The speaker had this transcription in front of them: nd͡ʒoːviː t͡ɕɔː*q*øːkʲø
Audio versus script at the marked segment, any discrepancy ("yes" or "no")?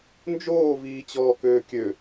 yes